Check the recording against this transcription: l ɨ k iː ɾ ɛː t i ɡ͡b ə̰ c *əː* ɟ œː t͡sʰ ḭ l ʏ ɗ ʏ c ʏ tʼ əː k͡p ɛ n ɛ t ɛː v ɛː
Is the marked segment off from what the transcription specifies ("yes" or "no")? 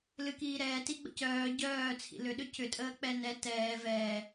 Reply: yes